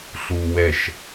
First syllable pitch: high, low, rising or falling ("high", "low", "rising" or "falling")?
high